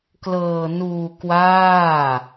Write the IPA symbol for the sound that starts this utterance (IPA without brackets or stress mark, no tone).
k